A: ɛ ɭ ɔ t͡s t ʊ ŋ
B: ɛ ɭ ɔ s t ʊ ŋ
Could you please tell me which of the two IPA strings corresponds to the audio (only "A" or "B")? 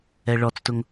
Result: A